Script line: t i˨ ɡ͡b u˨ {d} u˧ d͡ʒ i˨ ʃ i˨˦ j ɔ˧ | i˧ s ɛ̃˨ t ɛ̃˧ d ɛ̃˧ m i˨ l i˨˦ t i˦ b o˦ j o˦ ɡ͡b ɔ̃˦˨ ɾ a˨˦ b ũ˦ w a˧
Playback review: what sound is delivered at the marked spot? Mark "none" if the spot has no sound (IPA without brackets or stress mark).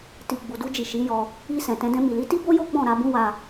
d